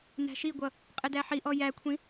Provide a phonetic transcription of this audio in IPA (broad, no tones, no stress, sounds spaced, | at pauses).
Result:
n æ̤ ʃ i ɡʷ ʌ | qʼ ɪ d æ ħ i ʔ ɔ j æ kʷʰ ĩ